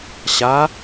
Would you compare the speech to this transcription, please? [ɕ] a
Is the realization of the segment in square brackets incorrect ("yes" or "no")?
no